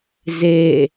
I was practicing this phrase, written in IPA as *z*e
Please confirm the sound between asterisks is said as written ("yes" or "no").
yes